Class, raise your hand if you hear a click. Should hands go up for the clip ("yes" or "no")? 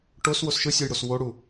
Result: no